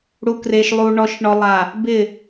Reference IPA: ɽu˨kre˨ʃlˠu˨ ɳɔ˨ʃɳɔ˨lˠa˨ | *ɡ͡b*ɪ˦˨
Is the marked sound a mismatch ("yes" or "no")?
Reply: yes